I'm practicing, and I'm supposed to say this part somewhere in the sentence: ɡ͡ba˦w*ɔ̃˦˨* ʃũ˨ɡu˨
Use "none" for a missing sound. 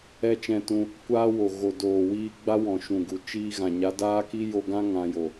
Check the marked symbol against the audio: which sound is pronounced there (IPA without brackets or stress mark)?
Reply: ɔ̃˨